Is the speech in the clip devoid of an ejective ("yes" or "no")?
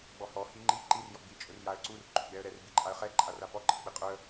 no